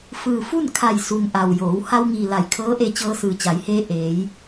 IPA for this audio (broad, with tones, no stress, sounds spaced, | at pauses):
f ɯː˧˩ f u˥˨ n kʰ a˧˩ j s u˩ ŋ ʔ a˩ w j oː˩˧ w h a˧ w ŋ iː˩ l a˧˩ j kʰ ɤː˧˥ ʔ e˧ t͡ɕ ɤː˧ s ɯː˩ t͡ɕ a˩˧ j h eː˧ ʔ eː˩˧ j